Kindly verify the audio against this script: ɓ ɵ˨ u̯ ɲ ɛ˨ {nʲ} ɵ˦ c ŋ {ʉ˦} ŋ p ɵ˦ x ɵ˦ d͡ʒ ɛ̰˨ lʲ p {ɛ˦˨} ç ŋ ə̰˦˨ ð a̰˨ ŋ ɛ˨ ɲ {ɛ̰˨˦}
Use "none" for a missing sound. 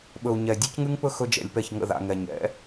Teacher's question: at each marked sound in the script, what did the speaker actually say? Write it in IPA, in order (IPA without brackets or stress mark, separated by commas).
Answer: dʲ, ʉ˦, ɛ˦˨, ɛ̰˨˦